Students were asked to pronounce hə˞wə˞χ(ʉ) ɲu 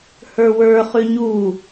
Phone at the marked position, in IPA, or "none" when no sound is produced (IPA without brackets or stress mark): ʉ